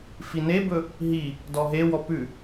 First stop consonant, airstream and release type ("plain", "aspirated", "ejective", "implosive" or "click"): plain